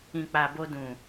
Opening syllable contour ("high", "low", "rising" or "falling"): low